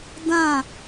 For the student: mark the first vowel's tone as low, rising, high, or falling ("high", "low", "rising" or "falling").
falling